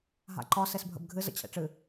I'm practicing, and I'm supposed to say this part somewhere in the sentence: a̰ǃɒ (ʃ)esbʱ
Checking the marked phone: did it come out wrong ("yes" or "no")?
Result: yes